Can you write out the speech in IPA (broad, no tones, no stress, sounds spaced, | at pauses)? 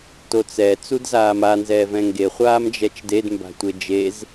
t o t͡s ɛ t͡s u d z aː m a n z ɛː v ɛ̃ ŋ ɡ e χʷ aː m d͡ʒ ɛ t͡ʃ d e d m b a̤ tʷ e d͡ʒ e z